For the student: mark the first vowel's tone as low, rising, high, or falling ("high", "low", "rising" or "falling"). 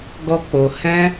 high